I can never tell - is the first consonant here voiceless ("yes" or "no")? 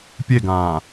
yes